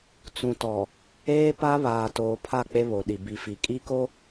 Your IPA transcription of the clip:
t͡s ũ˨ t ɔ˨ | eː˦ p a˦ β aː˨ t oː˨ pʰ a˦˨ k͡p e˦ β o˨ ɗ i˨ b i˨ f i˨ kʼ i˦ k o˦

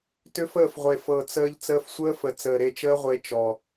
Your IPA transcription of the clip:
t ʏ˦ f əː˦˨ f ʁʷ e˨ f ɤ˨ t͡s əː˧ ʎ t͡s əː˧ f sʷ əː˦ f ə˨ t͡s əː˨ ɾ e˧ t͡ʃ əː˦ ʁʷ e˧ t͡ʃ ɔ˨

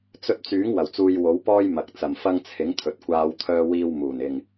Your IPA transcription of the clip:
t͡s ɵ˧ t̚ t͡s yː˨˥ ŋ w ɐ˨˩ w t͡s uː˧ j w o˨˥ w p ɔː˥ j m ɐ˨ k̚ t͡s ɐ˨ m f ɐ˥ ŋ t͡sʰ ɪ˨˥ ŋ t̪ʰ ɵ˨ t̚ kʷ aː˧ w t̪ʰ œː˧ w iː˧ w m uː˨˩ n ɪ˨ ŋ

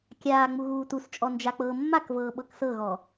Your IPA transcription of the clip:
kʲ aː ŋ͡m u ɣ uː t u s t͡ʃʼ ɔ n d͡ʒ a k͡p ɤː mː a k v ɤː ɓ ɤ k s ɤ ɣ ɔ

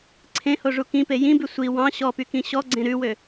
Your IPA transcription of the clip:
ǀʰ ẽ h o ʐ u k ĩ p e j ĩ b ʉ sʷ i w ɑ̃ ɕ ɔ p y k ĩ ɕ ɔ ɡ͡ǀ ẽ ɾ ʉ w ø

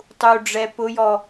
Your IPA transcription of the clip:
tˤ u ɖ͡ʐ ɛ p ʊ j ɔ

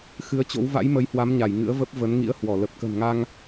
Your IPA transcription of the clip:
x ɨ˨˦ ə̯ t͡ɕ o̰˧˥ w v a̰˧˥ j m ə˨˦ j h w a˨˦ m ɲ a˧˩ j ŋ ɨ̰˧˥ ə̯ v ə˦˥ p̚ v ə˨˦ n ŋ ḭ˧˥ ə̯ h w ɔ˧˩ l ə˨˩ p̚ k ə̤˨˩ n ŋ a˧ ŋ

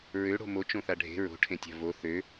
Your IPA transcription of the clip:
ɹ ø ɽ o̤ m o t͡ʃ õ θ a ɖʱ e̤ ɹ o̤ ʈʰ ẽ tʲ a̤ v o θ ø

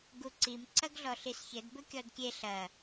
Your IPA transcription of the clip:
ɡ u ǀ i m ǀ ɐ ɡ ɮ ɔ ɬ i s ç ɘ d b ɘ kʲ ɔ d kʲ e ɬ ɐ

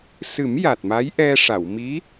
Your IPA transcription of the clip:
s ɨ˨˩˦ m j a˨˩ t̚ m a˧˥ j ʔ ɛ˧ ʂ a˨˩˨ w m i˧˥

